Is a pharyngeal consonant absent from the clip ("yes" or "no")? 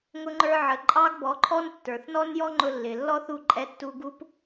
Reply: no